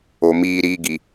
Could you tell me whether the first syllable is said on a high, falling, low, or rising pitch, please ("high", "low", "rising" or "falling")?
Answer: low